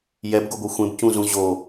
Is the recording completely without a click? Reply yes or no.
yes